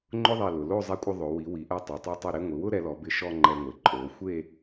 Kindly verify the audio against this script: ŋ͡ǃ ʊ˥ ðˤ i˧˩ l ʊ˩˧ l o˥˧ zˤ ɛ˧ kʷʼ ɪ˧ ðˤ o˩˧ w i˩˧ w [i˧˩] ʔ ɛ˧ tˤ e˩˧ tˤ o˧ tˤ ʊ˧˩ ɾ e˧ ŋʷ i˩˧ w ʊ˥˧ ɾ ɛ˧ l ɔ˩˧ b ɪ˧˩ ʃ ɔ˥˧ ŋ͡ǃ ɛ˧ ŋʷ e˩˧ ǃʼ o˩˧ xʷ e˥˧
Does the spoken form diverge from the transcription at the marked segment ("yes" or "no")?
yes